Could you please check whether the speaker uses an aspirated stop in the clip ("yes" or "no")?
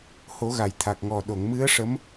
yes